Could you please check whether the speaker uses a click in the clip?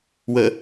no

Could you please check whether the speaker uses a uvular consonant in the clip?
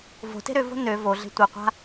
yes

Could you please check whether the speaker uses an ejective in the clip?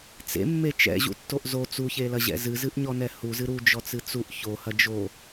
no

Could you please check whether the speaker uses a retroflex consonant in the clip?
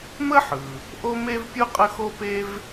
no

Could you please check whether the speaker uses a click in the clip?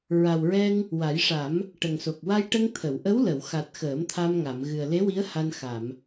no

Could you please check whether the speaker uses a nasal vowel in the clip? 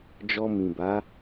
yes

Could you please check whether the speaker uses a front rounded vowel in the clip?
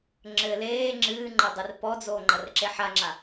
no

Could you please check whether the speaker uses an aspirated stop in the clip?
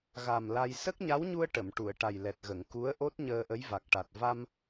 no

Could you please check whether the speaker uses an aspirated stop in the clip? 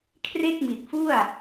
yes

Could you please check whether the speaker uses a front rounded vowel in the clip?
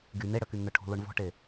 yes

